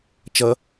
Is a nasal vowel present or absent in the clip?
absent